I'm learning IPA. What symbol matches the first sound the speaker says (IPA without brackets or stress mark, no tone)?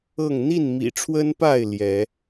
ɤ